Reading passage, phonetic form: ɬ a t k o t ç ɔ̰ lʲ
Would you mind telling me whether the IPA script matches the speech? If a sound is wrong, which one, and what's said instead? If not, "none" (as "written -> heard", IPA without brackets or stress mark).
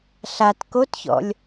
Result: none